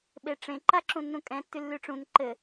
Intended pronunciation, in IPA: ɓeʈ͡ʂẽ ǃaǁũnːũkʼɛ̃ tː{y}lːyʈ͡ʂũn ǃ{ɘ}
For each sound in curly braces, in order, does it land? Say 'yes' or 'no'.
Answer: yes, yes

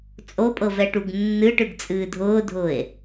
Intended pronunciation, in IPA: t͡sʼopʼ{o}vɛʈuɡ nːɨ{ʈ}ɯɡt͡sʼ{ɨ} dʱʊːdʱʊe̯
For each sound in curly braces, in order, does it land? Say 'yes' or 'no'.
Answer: no, yes, no

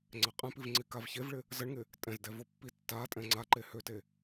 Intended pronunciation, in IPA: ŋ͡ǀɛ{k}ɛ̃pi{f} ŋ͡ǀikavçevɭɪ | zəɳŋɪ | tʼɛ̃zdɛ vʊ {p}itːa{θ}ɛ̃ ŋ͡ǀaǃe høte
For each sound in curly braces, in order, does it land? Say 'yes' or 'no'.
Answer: no, no, no, no

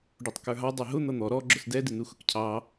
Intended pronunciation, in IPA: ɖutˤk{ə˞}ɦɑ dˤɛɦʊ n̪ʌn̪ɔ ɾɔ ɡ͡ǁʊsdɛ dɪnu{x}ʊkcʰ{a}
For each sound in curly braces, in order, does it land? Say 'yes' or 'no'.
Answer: yes, yes, no

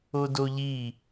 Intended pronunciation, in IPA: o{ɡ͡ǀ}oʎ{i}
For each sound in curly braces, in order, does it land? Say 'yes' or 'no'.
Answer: no, yes

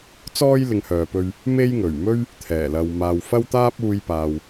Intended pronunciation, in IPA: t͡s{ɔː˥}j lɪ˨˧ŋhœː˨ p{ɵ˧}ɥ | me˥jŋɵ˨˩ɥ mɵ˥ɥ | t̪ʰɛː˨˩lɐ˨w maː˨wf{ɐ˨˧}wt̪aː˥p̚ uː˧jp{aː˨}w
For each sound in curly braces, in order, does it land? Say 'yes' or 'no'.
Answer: yes, yes, no, yes

